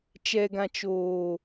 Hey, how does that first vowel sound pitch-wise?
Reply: low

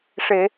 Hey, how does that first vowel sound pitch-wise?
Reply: low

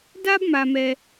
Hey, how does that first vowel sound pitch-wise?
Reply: high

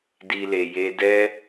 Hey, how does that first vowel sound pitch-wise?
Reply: high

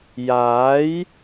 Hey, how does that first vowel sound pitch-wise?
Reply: rising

